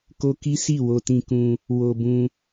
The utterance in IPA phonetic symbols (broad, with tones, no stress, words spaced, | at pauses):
ko˦ki˦si˦˨ wo˧tĩ˧kũ˧ | wo˧ bũ˧